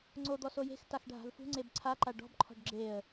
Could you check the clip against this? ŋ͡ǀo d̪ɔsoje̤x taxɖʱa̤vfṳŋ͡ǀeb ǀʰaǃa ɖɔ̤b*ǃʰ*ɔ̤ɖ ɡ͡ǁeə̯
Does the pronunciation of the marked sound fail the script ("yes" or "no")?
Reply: no